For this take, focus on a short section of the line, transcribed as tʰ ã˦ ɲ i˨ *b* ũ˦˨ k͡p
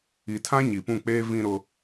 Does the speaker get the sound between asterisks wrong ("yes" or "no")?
yes